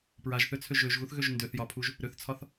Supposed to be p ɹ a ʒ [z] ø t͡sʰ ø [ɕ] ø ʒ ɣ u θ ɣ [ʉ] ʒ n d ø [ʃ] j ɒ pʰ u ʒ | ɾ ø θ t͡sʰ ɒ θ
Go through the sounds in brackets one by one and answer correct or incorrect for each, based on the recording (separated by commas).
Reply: incorrect, incorrect, incorrect, incorrect